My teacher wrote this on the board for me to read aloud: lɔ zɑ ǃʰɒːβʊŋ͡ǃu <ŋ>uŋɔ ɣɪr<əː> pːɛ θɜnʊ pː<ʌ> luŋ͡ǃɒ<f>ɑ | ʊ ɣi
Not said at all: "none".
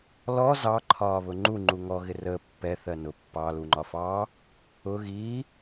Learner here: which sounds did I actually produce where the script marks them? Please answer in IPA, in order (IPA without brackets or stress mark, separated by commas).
ŋ͡ǃ, əː, ɑ, f